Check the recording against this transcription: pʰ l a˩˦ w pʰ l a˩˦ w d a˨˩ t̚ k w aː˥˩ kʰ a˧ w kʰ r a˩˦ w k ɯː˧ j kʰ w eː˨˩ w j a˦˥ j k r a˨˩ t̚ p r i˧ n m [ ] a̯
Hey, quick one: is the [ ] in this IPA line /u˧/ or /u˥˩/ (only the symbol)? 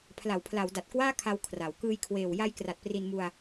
u˧